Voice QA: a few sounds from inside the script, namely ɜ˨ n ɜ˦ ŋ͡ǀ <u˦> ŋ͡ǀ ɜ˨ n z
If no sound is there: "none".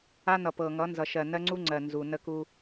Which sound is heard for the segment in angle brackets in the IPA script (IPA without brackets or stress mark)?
u˦